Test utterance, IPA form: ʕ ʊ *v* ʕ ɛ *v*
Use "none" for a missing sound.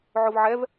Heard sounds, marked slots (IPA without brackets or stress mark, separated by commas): v, v